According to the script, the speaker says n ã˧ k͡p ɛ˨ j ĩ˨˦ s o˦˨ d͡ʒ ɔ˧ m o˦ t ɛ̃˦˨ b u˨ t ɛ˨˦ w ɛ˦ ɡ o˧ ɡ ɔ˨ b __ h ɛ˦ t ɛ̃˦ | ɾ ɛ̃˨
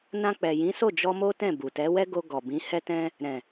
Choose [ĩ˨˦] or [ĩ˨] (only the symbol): ĩ˨˦